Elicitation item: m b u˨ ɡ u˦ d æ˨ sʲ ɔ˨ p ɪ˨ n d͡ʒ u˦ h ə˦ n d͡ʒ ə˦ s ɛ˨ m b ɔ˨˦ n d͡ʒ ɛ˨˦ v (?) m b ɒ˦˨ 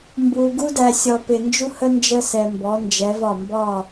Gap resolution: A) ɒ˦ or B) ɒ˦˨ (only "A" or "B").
B